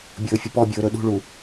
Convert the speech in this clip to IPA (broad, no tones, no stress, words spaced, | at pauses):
bʲɵːfʲəpɔbʲɵː ɾɵɗṳɭu